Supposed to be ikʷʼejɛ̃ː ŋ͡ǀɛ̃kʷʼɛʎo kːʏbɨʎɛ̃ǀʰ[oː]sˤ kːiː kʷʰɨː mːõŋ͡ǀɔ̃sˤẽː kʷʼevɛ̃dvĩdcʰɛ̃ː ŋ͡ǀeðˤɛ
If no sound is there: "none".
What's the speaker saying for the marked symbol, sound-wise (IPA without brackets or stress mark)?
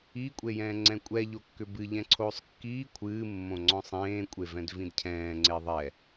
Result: oː